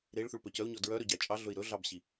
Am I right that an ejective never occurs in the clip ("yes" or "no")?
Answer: no